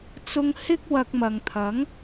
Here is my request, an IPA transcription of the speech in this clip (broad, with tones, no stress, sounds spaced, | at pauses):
t͡s ʊ˧ ŋ h ɪ˥ k̚ w ɐ˧ k̚ m ɐ˨ ŋ t̪ʰ ɐ˨˥ ŋ